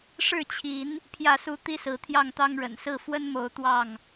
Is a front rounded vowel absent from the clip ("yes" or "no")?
yes